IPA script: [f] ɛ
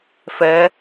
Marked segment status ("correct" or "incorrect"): correct